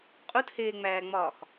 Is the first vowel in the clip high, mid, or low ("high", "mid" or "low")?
high